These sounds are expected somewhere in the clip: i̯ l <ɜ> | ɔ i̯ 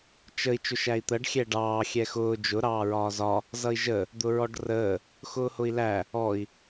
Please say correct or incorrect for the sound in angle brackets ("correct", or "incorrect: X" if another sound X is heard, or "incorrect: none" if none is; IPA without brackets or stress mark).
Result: incorrect: æ